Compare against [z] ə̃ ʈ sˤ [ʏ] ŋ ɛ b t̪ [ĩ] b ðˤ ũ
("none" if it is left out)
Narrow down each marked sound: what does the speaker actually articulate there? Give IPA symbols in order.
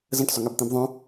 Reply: z, ʏ, ĩ

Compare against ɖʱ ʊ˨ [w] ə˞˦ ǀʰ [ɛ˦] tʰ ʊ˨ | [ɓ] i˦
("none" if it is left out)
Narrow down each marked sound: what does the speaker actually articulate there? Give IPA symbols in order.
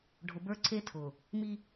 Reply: b, e˦, m

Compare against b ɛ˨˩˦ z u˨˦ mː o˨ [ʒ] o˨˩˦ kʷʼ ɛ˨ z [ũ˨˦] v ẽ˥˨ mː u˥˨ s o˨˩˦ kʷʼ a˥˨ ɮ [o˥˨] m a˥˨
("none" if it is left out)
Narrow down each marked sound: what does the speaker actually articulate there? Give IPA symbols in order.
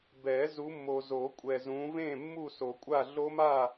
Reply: z, ũ˨˦, o˦˥

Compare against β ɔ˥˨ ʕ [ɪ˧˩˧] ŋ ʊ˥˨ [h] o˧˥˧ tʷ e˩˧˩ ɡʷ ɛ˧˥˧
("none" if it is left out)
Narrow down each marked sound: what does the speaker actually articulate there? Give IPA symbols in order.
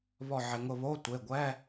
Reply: ɪ˧˩˧, β

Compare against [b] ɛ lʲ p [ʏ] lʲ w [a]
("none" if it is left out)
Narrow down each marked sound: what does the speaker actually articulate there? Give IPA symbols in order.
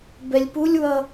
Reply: b, u, ʌ

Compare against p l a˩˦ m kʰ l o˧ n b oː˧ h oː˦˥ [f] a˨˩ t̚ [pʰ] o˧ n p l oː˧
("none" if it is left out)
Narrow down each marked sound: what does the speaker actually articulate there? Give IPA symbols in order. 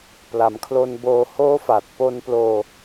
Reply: f, p

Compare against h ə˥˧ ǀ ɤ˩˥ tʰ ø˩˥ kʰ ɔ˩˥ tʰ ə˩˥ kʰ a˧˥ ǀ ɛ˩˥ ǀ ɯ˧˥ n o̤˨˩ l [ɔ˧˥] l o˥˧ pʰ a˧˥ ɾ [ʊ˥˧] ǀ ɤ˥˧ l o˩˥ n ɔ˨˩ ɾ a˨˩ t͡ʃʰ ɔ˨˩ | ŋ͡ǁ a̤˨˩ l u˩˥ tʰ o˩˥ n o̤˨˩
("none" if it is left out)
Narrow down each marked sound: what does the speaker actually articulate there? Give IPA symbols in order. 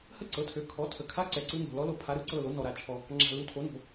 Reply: ɔ˧˥, ɯ˥˧

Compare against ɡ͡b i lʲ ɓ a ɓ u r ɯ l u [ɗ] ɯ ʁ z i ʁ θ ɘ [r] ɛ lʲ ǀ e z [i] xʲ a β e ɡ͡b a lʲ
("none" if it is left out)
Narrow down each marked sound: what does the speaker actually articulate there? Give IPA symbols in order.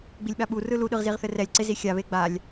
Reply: ɗ, r, i

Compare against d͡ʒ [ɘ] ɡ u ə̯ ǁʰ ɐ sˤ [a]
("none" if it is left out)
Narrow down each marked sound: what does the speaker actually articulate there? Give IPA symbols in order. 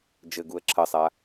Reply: ɘ, a

